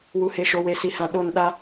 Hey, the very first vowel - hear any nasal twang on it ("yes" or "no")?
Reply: no